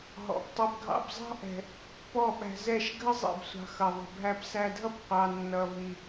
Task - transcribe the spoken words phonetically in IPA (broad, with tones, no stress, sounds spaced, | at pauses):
ɦ ɔ̰˨ p tˤ ʊ˧ b ɡʱ ɑ̰˧ b zˤ ɑ̤˦ ʔ ɛ̤˧ | p ɔ˦˨ ɓ æ̤˧ z ɛ˦˨ ʃ ɡʱ ə˦ zˤ ḭ˨ b sʷ ɑ̤˧ x ʌ˨ ðˤ ə̤˨ bʱ æ˧ p s æ˧ dʱ ʌ˦ p qʷ ɑ˧ nː ʌ˧ v i˧